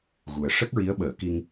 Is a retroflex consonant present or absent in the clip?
present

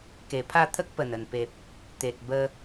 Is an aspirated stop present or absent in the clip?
present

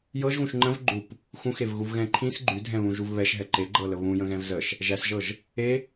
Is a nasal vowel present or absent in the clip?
present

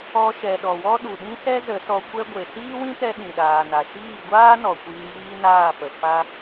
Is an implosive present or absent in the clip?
present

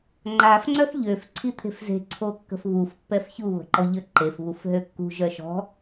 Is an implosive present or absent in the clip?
absent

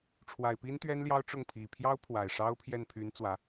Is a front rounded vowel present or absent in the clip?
present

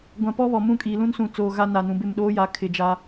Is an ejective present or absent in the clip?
present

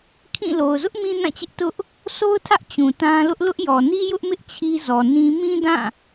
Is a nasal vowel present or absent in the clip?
present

